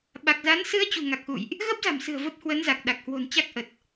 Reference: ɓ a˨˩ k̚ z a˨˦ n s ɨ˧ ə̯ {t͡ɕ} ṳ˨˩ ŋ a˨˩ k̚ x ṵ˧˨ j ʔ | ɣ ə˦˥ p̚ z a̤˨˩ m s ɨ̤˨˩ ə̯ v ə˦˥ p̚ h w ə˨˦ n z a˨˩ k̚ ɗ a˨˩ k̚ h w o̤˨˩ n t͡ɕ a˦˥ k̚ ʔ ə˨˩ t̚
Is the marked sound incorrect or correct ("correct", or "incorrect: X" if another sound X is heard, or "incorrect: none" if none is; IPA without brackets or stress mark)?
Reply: correct